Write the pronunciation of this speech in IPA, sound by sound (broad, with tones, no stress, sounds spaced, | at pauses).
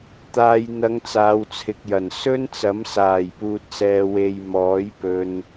t̪ aː˨ j n̪ ɐ˨˧ ŋ t͡s aː˨˧ w t͡sʰ ɪ˨ k̚ j ɐ˨˩ n s ɵ˥ n t͡s ɐ˨˥ m s aː˨˩ j p uː˨ t̚ s ɛː˨ w e˨ j m ɔː˨˥ j p ɵ˧ n